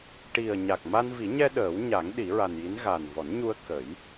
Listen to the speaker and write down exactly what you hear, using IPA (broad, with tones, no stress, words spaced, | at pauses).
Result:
ʈi˨˩ə̯ ɲa˨˩k̚ma˧nvi˨˩˦ɲɛ˧ ɗəː˨˩˦wɲa˨˩˦ŋ ɗi˨˩˦ɹa˨˩nji˧˥n ɣa˨˩nvɔ˨˩˦nɲu˧ə̯ kə˨˩˦j